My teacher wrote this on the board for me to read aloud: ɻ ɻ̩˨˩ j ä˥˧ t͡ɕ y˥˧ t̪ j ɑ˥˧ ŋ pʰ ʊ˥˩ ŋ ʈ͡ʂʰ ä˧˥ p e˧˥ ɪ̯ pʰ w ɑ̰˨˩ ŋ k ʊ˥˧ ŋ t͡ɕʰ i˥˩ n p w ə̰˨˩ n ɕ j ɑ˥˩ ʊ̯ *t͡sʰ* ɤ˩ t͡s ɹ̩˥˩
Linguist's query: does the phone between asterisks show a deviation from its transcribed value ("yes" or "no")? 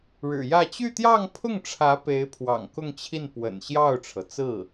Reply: yes